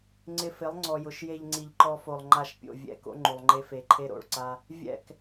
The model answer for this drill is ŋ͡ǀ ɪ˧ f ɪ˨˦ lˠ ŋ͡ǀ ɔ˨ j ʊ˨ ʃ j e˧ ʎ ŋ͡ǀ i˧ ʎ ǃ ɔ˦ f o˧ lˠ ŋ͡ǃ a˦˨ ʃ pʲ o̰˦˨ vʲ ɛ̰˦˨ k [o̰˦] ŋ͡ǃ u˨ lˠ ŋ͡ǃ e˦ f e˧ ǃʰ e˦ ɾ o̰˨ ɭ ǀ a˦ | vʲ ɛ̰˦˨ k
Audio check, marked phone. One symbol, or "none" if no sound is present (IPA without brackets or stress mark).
o̰˦